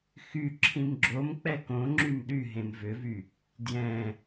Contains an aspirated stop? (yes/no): yes